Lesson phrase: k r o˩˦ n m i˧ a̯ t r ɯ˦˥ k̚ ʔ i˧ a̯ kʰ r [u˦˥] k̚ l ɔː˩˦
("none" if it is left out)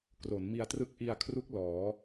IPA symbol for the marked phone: u˦˥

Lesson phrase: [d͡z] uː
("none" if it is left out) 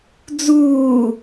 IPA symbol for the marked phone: d͡z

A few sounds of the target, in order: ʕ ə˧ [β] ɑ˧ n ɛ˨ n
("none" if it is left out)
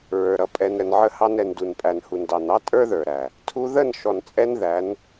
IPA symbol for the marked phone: h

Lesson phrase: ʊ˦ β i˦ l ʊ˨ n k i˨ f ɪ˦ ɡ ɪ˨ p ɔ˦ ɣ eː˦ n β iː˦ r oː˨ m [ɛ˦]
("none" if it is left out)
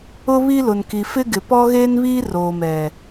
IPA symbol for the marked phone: ɛ˨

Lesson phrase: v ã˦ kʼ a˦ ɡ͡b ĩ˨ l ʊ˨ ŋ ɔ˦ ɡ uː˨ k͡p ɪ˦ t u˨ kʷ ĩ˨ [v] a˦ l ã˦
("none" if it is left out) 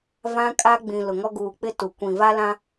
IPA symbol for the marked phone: v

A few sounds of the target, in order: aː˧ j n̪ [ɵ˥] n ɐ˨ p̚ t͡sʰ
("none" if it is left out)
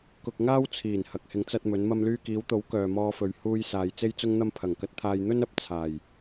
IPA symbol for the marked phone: ɵ˥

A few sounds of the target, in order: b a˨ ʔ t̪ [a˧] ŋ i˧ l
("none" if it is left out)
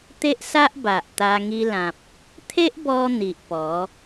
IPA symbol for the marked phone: a˧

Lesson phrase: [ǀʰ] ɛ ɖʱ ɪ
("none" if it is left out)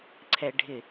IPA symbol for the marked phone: ǀʰ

